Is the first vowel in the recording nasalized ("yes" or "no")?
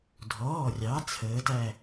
no